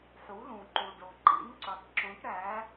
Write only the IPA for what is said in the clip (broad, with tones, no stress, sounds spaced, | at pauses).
ħ u˩˥ l ũ˩ ǃ u˩ ɖ o˩ ǃ ḭ˩˥ n ǀ u˩ tˤ ǁ ũ˩˥ ʈ ɾ æ˩˥